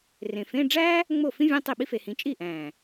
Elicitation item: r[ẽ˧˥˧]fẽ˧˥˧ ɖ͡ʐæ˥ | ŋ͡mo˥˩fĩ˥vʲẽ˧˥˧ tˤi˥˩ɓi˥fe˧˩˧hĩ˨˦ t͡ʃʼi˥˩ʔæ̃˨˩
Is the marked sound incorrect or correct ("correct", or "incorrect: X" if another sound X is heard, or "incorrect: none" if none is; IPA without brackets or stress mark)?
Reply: incorrect: ẽ˨˩